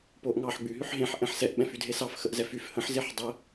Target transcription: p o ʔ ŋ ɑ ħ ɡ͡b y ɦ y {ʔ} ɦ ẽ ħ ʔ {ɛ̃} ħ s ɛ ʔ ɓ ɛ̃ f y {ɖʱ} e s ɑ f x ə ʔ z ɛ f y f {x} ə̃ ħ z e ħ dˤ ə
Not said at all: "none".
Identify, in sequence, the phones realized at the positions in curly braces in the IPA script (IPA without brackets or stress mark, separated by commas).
ħ, ɛ̃, dʱ, h